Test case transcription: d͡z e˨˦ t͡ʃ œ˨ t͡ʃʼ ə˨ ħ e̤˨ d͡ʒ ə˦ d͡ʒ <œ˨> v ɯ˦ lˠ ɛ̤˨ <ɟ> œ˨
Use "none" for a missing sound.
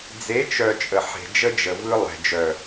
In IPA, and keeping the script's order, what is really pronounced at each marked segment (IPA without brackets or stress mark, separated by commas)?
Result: ə˨, d͡ʒ